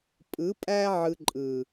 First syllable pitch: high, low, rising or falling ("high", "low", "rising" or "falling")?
rising